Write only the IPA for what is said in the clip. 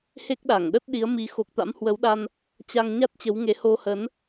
he˦˥k̚ɗa˧˩ŋɗə˦˥t̚ ɗi˨˦ə̯ mi˨˦xo˨˩k̚t̪a̰˧˥m hwə˨˦wɗa˧n | t͡ɕa˧ŋ ɲa˦˥t̚t͡ɕə˨˦wŋe˨˦ho˧ hə˨˦n

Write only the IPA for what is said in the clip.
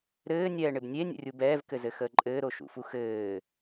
ɾɘːnʲɛːɳɪb nʲenʲə̰rʲu bɛːvkɘzɘxəː ǃʼɘːɾoʃṵfu xɘː

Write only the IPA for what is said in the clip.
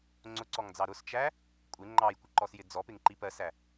ŋ͡ǀʊǀɔŋd͡zɑ ɾʊst͡ʃæ | kʷʼɪ ŋ͡ǃɑjkʷɪǃɔsjɪ d͡zɔpɪŋǃi pɜsæ

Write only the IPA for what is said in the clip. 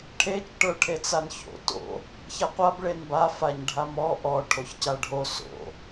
ʈʰet͡ʃ ʈə˞ʈʰet͡sanço̰ to̰ | çaqʷab ɭenba faɲɖʱamɔ ʔɔ ʈʰoçcaɖʱo so̰

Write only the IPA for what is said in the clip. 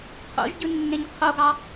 qʰo̰ʒɟɯnːẽɲ qʰoɡɑ

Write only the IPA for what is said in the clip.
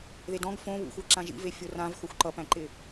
ðedɔ̃ɡ fõ βṵ xʷæǁãʒḭve fʲorãv xoxʷǃʌpæ̃ǃɪ

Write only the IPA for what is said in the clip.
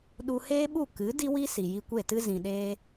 ɗu˧heː˦ɓu˦˨ kɨ˨˦ di˦wi˦ si˨ji˧kʷe˦˨tɨ˦ zĩ˨ɗeː˧

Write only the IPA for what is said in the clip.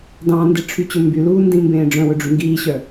dɑ̃ndiʈ͡ʂʰyt͡ɕɵ mbyluːndĩmbẽː ɖ͡ʐœ̃wɵɖ͡ʐy ŋɡiːɕœ

